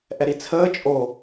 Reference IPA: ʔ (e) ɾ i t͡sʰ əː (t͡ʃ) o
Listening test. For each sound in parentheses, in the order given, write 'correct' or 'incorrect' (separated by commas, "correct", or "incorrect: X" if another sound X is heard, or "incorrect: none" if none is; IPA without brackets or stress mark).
incorrect: ɛ, incorrect: t͡ʃʼ